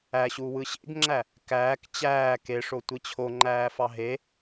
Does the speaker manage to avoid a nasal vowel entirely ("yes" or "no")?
yes